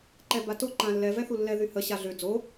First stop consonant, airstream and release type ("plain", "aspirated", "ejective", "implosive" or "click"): click